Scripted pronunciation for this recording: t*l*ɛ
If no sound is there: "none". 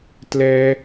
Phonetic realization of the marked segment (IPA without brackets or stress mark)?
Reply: l